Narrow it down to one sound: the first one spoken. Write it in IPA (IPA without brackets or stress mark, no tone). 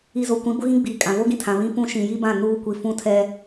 i